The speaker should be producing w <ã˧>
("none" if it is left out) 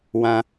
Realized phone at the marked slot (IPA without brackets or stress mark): ã˧